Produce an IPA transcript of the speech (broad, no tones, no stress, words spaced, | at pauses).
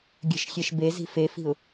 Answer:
ɡʲə̤ʃxʲeʃ bezi̤ fefi̤ʊ̯